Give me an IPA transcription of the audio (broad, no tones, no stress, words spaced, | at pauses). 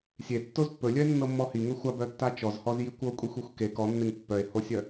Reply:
sʲetːoz pːɵlʲœe̯nːɤmːɔ hiŋɵ xʷabœtːa t͡ʃɔzhɔzji kʷɤkʷʼixʷexʷ ke kɔnːeŋ pːœe̯hosʲœ